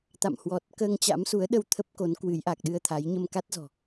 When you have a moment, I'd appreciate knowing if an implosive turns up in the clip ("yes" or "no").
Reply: yes